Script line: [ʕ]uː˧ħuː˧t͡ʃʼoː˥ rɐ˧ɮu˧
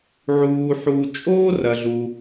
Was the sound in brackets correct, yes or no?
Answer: yes